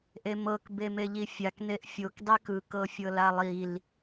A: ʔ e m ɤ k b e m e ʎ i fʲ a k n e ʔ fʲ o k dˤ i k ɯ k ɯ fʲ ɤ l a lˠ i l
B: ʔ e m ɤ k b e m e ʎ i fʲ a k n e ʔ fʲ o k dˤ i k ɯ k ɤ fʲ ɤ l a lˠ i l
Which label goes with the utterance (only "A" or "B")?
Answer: B